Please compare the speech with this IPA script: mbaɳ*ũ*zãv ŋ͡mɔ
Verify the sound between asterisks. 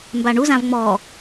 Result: incorrect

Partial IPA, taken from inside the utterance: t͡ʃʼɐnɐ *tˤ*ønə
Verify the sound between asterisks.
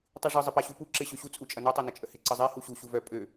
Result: correct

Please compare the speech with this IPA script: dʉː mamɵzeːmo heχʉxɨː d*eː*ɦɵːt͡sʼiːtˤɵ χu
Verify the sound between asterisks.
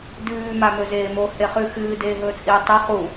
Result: correct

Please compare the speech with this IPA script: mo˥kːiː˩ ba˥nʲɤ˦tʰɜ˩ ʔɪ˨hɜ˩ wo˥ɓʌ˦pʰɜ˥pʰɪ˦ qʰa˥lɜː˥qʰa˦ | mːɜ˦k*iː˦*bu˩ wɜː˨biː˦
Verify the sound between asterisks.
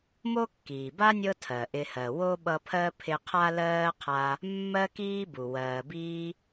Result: correct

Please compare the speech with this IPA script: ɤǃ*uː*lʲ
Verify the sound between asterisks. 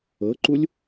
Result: incorrect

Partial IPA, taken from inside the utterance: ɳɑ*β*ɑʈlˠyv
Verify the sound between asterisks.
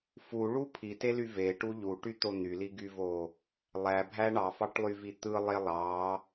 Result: incorrect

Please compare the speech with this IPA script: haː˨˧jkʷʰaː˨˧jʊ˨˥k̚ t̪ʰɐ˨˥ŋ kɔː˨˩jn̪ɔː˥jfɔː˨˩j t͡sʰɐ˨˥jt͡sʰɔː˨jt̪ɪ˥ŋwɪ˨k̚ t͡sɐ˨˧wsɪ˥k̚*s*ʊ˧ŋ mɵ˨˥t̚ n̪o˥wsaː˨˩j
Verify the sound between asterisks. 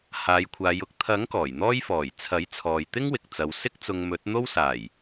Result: incorrect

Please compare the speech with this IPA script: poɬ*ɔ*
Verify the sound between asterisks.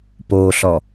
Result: correct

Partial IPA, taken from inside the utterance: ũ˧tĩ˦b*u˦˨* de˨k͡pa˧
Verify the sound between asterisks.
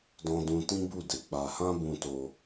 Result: correct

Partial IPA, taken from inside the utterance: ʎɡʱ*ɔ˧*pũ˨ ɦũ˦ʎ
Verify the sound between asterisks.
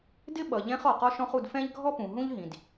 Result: incorrect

